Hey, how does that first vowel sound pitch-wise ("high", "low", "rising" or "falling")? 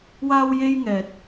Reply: high